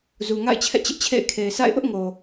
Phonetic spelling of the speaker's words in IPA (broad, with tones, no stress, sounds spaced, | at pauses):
z u˨ ŋ a̰˦˨ ɪ̯ t͡ɕʰ ɛ̰˦˨ t͡ɕ ɪ˦ ʔ t͡ɕʰ ḛ˦˨ ɪ̯ kʰ e˨ ɪ̯ s a̰˦˨ ɪ̯ ʔ ʊ˦ ʔ ŋ o˨